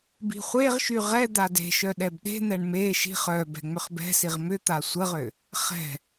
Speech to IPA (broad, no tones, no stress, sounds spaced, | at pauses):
b i̤ χʷ e ʁ ʃ y ʁ ɛ d̪ a d e̤ ʃ œ ɗ ɛ b ɗ e̤ n̪ ɛ ɳ m e ʃ i̤ χ œ b ɛ̤ ŋ͡m ʏ χ b ɛ̤ s i ʁ m ʏ t̪ a sʷ ə ʁ ʏ | χ ɛ̤